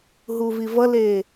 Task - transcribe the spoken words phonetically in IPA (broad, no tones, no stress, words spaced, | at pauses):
ɦuvivʌleː